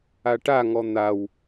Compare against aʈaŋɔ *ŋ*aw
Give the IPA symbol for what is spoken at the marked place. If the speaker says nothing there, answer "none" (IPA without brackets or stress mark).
n̪